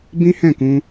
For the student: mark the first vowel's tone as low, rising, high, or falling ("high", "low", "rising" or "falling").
high